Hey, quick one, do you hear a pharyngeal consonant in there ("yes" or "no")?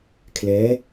no